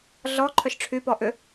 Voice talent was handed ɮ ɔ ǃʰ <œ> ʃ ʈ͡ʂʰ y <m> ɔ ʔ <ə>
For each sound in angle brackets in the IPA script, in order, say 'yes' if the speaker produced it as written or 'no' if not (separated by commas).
yes, no, no